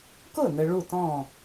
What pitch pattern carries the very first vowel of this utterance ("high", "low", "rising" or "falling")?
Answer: falling